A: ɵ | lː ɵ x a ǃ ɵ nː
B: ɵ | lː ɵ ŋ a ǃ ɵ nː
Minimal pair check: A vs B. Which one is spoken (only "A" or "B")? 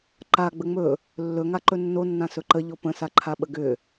B